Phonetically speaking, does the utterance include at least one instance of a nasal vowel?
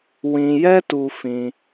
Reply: yes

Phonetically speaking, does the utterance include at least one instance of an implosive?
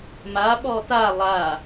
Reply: yes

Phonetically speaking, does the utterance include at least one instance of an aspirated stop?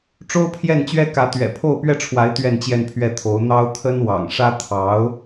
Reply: yes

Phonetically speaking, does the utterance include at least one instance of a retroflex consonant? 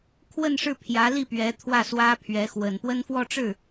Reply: yes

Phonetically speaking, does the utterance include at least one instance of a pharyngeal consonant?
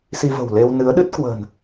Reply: no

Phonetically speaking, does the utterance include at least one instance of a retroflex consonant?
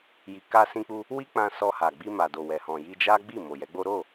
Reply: no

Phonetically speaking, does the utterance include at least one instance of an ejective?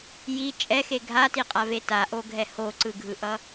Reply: yes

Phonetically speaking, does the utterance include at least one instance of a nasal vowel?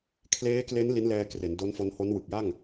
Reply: no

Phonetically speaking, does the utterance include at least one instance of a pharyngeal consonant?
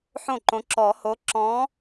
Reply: yes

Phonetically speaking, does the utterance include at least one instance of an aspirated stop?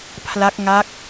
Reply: yes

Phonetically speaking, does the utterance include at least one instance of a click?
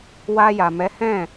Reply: no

